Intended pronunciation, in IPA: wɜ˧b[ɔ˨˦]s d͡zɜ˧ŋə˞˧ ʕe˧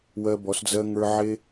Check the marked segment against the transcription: correct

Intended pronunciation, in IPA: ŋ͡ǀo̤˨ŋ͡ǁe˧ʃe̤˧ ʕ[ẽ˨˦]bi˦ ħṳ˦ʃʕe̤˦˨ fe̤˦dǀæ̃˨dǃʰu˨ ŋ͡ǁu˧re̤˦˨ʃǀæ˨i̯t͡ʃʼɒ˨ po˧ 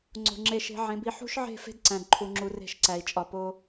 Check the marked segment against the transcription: correct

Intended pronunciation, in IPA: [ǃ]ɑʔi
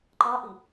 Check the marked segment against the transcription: correct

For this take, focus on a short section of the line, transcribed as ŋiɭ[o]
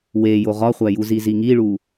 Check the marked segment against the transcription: incorrect: u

